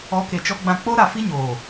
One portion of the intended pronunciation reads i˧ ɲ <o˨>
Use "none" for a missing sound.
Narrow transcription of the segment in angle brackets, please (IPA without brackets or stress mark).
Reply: oː˨